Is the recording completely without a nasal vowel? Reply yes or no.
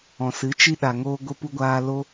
no